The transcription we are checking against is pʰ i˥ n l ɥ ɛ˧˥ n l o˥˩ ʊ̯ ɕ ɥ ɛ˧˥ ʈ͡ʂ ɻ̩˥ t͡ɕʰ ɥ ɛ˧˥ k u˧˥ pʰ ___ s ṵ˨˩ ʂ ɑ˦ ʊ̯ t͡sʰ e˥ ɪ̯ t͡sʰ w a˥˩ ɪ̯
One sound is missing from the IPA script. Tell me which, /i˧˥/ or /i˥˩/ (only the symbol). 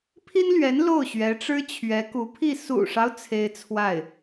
i˥˩